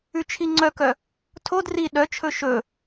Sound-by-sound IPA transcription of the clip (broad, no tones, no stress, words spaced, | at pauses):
ʉt͡ʃʰiŋ͡ǀœkœ | tʰod ri ɗœt͡ʃʰɵ ʃɵ